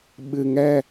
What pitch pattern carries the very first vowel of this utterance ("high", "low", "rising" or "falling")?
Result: low